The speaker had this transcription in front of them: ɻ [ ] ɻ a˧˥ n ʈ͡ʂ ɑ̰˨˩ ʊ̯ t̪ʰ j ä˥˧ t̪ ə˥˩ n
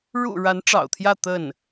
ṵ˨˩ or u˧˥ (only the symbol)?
ṵ˨˩